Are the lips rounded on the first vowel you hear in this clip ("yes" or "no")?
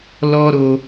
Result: yes